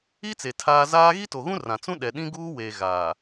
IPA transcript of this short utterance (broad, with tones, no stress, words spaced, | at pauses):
i˦t͡se˨ tʰaː˦ zaː˦ ɣi˦to˨ɣũ˦rã˨ t͡sũ˦ ɗɛ˨ɗĩ˦ɡuː˦weː˨ ɣaː˨